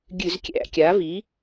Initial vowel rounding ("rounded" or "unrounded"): rounded